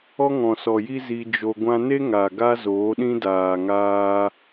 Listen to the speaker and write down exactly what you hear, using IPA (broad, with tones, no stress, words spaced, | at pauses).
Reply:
ɔ˦ŋɔ̃˨sɔ˨ji˦ zi˧d͡ʒo˧ ɡʷã˧ne˦ ŋa˨ ɡa˦zoː˨˦ ɗĩ˦daː˨ŋaː˧